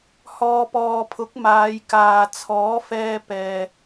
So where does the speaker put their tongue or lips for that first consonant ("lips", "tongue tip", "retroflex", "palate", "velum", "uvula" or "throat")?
throat